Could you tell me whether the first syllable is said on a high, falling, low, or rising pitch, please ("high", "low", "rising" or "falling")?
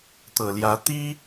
low